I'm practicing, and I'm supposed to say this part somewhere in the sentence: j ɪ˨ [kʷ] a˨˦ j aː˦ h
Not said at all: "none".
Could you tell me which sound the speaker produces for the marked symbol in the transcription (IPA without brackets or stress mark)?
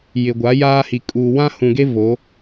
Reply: ɡʷ